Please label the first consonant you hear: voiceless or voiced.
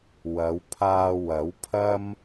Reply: voiced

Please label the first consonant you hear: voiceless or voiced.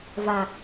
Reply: voiced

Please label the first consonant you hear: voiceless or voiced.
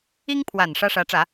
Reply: voiced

